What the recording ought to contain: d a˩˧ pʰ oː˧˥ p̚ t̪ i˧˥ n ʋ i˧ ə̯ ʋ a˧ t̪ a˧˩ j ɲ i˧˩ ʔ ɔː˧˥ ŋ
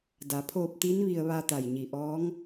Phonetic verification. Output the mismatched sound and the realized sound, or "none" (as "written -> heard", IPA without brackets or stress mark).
oː˧˥ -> oː˧